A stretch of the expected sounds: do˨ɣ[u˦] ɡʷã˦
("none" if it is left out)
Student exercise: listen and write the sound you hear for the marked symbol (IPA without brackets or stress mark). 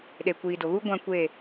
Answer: u˦